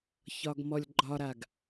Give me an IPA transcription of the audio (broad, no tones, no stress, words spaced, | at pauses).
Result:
çɒɡmɔlʲɡ͡ǃɒɾaɡ